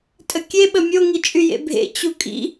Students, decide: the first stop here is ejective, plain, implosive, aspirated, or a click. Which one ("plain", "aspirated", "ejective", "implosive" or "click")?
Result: ejective